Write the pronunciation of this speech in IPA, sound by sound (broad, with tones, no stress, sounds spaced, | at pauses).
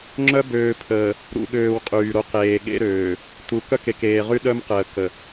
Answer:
ŋ͡ǁ œ˦ b øː˨ pʰ əː˨ | ɾ ṵ˨ ɠ øː˨ w qʼ yː˨ ɾ o˦ q eː˨ ɠ ḛ˦ ɾ øː˨ | t u˨ k œ˦ k e˨ k eː˨ ʁ y˦ ɗ œ˦ m q əː˨ k ə˨